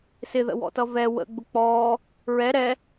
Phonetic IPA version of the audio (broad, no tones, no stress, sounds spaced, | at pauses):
s ɪ ð ə̰ w ɔ̰ t ʌ v ɛ w ə̰ ɡ͡b ʊ k͡p ɔː | ɹ ɛ ɾ ɛ